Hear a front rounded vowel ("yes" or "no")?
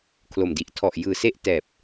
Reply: no